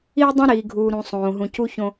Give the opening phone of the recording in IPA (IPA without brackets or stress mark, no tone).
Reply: iː